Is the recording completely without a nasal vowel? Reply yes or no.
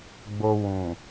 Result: no